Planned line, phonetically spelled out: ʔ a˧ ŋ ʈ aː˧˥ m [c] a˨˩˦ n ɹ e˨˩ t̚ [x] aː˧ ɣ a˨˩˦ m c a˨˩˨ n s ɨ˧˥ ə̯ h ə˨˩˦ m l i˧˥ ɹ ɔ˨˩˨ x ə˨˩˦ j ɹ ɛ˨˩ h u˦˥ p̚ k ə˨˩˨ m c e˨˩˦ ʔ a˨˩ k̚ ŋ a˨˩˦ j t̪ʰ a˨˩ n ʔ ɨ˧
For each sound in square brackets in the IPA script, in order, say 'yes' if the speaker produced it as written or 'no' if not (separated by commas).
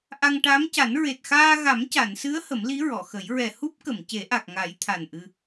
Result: yes, yes